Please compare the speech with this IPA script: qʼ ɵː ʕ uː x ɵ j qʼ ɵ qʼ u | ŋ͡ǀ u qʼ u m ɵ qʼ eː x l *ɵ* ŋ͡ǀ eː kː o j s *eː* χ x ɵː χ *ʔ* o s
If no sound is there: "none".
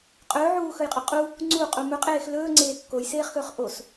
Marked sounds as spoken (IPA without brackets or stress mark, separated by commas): ɵː, eː, ʔ